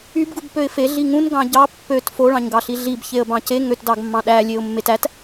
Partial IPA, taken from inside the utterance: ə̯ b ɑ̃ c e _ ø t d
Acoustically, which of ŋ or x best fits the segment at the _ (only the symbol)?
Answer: ŋ